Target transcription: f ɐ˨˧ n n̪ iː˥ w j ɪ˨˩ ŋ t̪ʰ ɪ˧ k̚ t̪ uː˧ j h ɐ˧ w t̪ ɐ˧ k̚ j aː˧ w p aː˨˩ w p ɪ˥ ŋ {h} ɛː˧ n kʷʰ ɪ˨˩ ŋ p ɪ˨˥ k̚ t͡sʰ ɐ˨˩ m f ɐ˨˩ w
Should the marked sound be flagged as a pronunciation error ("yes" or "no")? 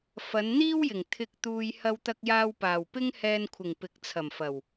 no